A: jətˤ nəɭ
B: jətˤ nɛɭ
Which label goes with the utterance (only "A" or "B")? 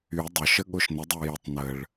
A